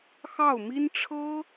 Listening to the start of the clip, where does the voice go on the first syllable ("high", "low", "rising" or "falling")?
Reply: falling